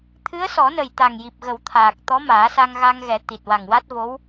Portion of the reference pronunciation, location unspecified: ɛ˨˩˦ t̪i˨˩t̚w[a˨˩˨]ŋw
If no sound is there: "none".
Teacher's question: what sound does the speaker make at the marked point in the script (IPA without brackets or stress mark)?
a˨˩